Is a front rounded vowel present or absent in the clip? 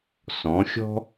absent